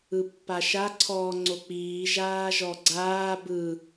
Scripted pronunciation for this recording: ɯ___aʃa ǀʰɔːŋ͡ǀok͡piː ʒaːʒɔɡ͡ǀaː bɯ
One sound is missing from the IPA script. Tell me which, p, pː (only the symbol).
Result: pː